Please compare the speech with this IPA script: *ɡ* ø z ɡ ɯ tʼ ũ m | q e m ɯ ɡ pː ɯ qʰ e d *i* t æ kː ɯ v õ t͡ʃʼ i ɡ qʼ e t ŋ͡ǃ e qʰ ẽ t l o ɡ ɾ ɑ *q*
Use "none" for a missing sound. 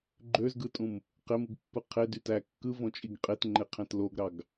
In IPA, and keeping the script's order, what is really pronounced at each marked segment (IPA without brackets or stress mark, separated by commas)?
ɡ͡ǃ, y, ɡ